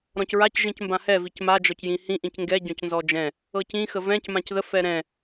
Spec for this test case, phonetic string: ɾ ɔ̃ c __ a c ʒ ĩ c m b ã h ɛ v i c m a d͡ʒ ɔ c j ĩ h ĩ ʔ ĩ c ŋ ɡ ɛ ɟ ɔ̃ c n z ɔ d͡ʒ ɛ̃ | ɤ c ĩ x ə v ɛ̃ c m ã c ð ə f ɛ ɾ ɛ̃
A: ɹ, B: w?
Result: A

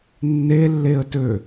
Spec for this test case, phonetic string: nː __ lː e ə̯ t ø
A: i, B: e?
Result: B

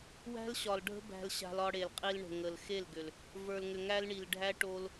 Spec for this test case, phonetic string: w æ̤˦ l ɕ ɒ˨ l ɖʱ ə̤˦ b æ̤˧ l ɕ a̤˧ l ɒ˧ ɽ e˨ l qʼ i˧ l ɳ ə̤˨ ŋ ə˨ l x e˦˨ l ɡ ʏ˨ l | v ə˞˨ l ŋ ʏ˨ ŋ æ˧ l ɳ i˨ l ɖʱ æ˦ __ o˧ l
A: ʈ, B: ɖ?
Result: A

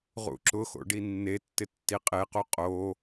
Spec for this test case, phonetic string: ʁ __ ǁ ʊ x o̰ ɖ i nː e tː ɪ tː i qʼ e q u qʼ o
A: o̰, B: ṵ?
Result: B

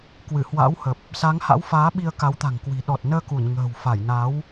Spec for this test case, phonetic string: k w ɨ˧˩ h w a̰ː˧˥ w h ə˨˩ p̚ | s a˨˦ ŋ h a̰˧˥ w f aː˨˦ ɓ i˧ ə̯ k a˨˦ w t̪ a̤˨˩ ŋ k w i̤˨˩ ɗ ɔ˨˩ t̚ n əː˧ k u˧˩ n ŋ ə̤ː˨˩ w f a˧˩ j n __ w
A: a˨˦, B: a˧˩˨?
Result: A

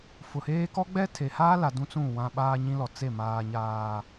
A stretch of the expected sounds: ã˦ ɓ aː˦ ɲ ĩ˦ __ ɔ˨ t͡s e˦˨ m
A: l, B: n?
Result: A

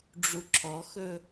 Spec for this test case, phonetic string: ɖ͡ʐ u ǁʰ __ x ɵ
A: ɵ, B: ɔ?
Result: B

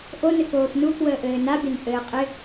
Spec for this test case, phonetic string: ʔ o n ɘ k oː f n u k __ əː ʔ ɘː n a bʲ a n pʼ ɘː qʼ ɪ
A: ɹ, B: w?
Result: B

